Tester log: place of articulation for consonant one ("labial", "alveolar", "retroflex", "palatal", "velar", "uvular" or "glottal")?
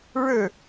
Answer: retroflex